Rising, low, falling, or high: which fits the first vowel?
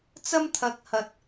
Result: high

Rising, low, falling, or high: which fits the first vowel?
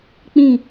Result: falling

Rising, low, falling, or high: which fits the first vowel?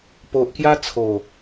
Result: low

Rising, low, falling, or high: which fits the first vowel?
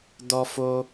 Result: high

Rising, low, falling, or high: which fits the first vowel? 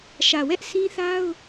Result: low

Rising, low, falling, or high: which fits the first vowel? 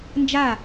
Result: falling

